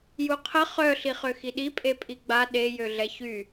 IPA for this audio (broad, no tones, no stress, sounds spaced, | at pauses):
j u qʰ ə χ œ ɬ i χ ø x i ɗ i pʼ e pʼ i ɡ͡b a ɗ e j ø ɮ ɛ ç y